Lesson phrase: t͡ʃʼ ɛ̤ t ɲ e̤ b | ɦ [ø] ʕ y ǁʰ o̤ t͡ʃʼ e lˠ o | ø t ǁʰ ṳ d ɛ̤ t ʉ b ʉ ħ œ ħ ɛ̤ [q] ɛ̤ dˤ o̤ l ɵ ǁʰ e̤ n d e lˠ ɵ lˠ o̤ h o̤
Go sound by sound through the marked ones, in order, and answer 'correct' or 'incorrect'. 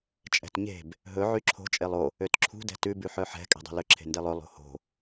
incorrect: ɵ, incorrect: kʼ

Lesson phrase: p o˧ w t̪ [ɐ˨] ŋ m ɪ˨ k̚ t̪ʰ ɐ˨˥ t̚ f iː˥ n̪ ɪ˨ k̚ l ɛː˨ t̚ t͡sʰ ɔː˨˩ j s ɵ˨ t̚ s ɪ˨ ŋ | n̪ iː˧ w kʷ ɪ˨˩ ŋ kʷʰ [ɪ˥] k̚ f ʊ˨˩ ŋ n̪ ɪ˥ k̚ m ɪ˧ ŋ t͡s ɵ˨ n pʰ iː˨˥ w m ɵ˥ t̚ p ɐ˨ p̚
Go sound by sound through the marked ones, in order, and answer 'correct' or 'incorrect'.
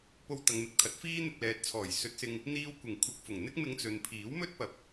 correct, incorrect: ɪ˨

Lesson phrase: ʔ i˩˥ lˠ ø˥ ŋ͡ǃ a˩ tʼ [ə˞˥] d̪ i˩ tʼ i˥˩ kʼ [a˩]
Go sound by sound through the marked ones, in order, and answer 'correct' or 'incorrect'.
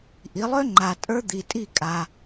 correct, correct

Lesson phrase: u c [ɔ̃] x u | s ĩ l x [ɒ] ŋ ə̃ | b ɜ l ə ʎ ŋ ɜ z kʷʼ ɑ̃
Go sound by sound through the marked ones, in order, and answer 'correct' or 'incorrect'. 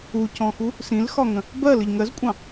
correct, correct

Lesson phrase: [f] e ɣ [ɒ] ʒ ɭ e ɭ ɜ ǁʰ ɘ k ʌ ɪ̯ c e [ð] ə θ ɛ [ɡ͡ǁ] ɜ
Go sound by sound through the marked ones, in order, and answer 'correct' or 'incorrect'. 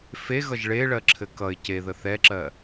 correct, incorrect: ʌ, correct, incorrect: ǁ

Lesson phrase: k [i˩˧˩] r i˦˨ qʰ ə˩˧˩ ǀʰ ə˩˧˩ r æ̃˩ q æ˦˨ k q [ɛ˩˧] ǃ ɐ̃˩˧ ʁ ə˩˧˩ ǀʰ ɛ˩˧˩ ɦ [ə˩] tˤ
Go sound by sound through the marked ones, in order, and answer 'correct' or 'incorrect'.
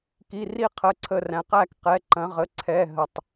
correct, incorrect: ɛ˩˧˩, correct

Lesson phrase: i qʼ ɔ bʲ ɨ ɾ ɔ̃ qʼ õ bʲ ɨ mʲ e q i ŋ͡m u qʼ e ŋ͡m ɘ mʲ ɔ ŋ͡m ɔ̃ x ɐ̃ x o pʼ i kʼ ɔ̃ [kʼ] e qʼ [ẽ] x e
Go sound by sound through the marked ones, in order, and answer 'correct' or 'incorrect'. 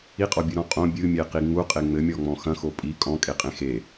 correct, correct

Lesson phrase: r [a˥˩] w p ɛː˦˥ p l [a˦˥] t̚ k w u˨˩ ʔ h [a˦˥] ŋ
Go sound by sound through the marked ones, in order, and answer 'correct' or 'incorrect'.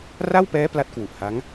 correct, correct, correct

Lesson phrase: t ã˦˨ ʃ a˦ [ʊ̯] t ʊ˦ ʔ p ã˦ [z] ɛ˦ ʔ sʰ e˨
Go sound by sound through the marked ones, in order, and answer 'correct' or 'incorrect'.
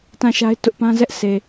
incorrect: ɪ̯, correct

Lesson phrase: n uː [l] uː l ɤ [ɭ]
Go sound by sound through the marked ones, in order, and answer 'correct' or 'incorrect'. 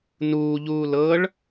incorrect: ʎ, correct

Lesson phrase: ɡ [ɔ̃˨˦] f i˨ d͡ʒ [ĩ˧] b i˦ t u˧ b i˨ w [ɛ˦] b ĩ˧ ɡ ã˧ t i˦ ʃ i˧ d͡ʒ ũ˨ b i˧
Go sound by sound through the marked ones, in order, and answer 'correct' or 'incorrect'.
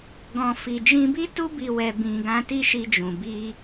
incorrect: ɔ̃˨, correct, incorrect: ɛ˨

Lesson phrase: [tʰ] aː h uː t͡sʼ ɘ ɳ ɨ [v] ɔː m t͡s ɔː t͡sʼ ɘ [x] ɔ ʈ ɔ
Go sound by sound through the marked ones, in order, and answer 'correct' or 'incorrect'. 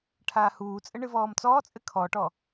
incorrect: ʈʰ, correct, incorrect: kʰ

